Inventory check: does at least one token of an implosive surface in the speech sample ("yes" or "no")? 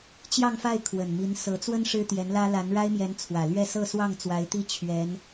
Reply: no